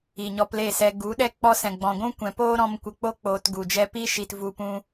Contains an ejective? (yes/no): no